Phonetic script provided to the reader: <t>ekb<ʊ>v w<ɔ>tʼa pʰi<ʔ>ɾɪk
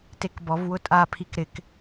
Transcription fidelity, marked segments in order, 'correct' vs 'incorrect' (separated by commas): correct, incorrect, incorrect, incorrect